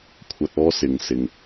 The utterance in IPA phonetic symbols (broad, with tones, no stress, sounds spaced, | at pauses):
kʷʰ ɐ˧ t̚ ɔː˥ s ɪ˨ ŋ s ɪ˨ ŋ